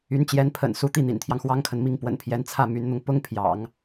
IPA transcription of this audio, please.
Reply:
y˧˥ n t͡ɕ j ɛ˧˥ n pʰ ə̰˨˩ n s u˧˥ t̪ i˥˩ n̪ ḭ˨˩ n t̪ʰ j ɑ˦ ŋ x w ɑ˥ ŋ kʰ ə˨ n m i˥˩ ŋ p w ə̰˨˩ n pʰ j ɛ˧˥ n t͡sʰ ä˥˩ m y˧˥ n n̪ ʊ˧ ŋ p ʊ˥ ŋ pʰ j ɑ̰˨˩˦ ŋ

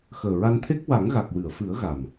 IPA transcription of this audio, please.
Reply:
x əː˨˩ ɹ a˧ n t̪ʰ e˦˥ k̚ w a˨˩˦ ŋ ɣ a˨˩ k̚ w ɨ˨˩˨ ə̯ f ɨ˨˩˦ ə̯ ɣ a˨˩ m

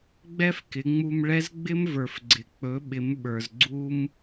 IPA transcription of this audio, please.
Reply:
ɡ͡b ɛ˥ f k ɪ˩˧ ŋ͡m u˧ m ɭ ɛ˧˥ z ɡ͡b ɪ˥ m v ə˞˩ f ɡ͡ǀ ɪ˩ k͡p ɵ˩˧ ɓ ɪ˩˧ m ɓ ə˞˩ z ɡ͡ǀ u˥ m

